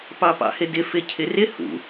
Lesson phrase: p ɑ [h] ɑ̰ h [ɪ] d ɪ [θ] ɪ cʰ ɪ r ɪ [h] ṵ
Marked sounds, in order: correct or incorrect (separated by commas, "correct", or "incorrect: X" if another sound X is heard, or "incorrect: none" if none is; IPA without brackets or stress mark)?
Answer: incorrect: p, correct, incorrect: f, correct